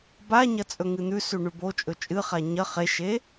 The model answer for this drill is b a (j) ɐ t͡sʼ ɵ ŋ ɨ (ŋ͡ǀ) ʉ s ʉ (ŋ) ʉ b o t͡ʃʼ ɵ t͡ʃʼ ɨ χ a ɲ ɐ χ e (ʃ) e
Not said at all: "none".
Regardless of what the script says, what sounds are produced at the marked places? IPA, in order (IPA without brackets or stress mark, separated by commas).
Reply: ɲ, n̪, ɳ, ʃ